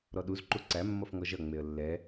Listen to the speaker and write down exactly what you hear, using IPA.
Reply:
ɾ ɔ ɗ u z ǃ u ǀ æ mː ʌ f ŋ ɔ ʒ ʌ ŋ͡m e ə̯ lː ɛ

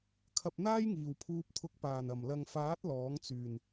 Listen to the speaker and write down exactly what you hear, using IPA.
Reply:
kʰ ɐ˧ p̚ n̪ aː˥ j ŋ iː˨˩ w pʰ uː˧ p̚ t̪ʰ ʊ˨˥ k̚ p aː˨˩ n ɐ˨˩ m l ɐ˨ ŋ f aː˨˥ t̚ l ɔː˨˥ ŋ t͡s yː˨˩ n

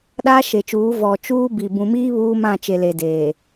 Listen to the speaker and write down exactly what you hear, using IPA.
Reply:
ɗ aː˦ ʃ e˨ t͡ʃ uː˨˦ v ɔ˨ t͡ʃ uː˦ b i˨ b ũ˨ m iː˦ β uː˦ m ã˦˨ t͡ʃ e˨ l e˨ d eː˨

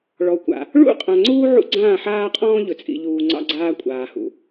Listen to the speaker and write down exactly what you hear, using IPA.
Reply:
ɭ ɔ˨ kʷ a̰˨ | ɭ ṵ˦˨ qʼ ã˨ ŋ͡ǀ uː˦ ʕ ṵ˦ ɡ͡ǀ ãː˦˨ ħ aː˦ qʼ ɔ̃ː˦ ʎ ɵ˨ t͡sʼ ḭ˨ ʎ uː˨ ŋ͡ǀ ɑ̰˦ ɡ͡ǀ aː˦ kʷʼ aː˨ h ṵ˨

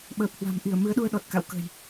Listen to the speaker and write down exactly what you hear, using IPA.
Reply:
ɓ əː˨˩ p̚ h w a̤˨˩ m ʔ i˧˩ ə̯ m ɨ˨˦ ə̯ ɗ u˧ ə̯ ɗ ɔ˨˩ t̚ k a̰˧˨ w k ə̤˨˩ j

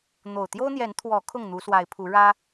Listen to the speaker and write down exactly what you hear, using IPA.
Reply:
n̪ o˨˩ ʊ̯ t̪ j o˦ ʊ̯ n̪ j ɛ˨˦ n t̪ʰ w ɔ˨˦ kʰ ʊ˥˨ ŋ n̪ u˨˦ s w a˨˦ ɪ̯ pʰ u˨˦ ɻ ä˦

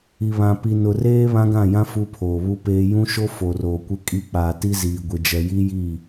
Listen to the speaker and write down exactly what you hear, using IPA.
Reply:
i˨ β ã˨ p i˨ n ʊ˨ r eː˦ β ã˦ ɡ ã˦˨ j ã˦ f u˦ pʰ oː˨ β u˦ p eː˦ j ũ˦ ʃ o˦ f o˨ r oː˨ kʷ ɪ˦ kʼ i˦ k͡p aː˨ t i˦ z iː˨ ɡʷ ɪ˨ d͡ʒ ɛ˨ j i˦ j iː˦˨

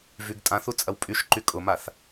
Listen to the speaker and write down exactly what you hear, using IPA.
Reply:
v y ɡ tʼ ã θ u t͡sʼ ɐ w pʼ y ʃ ǃ y kʼ ʊ m a θ

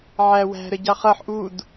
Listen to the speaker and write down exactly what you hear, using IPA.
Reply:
ʕ æ w æ̤ ɾ ə ɟ ɑ χ ʌ ħ ʔ u d

